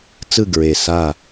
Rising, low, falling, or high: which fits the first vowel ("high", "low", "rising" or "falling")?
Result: falling